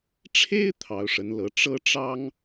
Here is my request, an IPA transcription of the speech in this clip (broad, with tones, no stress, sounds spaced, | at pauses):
ʈ͡ʂʰ e˥ ɪ̯ t̪ʰ ɑ˧˥ ʊ̯ ʂ ə˧˥ n l ɤ˧˥ ʈ͡ʂ ɤ˥ ʈ͡ʂ ɑ˥ ŋ